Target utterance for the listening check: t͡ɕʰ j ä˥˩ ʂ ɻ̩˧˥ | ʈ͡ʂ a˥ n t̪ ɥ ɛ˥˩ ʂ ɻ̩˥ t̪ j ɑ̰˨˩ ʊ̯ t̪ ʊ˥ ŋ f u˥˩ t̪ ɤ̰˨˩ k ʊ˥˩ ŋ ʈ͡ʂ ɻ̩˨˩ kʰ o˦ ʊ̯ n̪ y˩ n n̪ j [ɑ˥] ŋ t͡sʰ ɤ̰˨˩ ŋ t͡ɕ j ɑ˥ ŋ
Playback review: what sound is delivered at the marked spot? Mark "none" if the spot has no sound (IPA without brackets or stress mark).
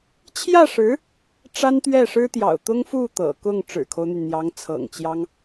ɑ˧˥